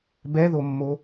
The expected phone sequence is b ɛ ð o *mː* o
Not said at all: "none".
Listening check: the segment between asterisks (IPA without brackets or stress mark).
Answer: mː